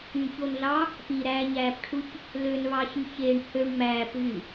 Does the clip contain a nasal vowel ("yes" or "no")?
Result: no